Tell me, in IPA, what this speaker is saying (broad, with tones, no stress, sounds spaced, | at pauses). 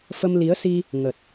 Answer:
f ə˧ m l i˨˦ ə̯ s i˧ | ŋ ə˨˩ t̚